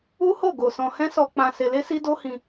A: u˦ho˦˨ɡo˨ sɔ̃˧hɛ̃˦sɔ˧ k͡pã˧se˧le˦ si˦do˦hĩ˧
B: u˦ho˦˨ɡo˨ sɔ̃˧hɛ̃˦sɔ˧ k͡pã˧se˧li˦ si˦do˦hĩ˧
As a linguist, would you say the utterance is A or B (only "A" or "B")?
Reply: A